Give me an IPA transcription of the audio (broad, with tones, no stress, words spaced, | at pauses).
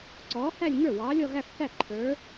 ǀɔː˨˥hæ˥˧lʲŋə˞˥˩ wɑː˨˥lʲɔ˥˧ɣæ˥˧fθæ˥˩ ǃʰə˞˨˥